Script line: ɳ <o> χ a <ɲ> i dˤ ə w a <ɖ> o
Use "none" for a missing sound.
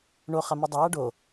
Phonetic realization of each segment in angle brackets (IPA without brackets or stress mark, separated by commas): o, m, ɖ